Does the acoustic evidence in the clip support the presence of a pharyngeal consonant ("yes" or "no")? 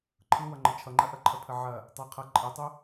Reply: yes